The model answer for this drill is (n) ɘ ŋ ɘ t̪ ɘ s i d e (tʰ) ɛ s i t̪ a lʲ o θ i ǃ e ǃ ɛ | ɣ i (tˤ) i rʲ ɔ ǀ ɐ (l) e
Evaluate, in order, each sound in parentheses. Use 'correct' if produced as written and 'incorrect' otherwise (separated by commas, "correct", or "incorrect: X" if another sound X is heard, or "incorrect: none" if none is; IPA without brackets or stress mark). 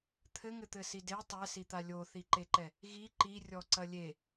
incorrect: t̪ʰ, incorrect: tˤ, incorrect: ǃ, incorrect: lʲ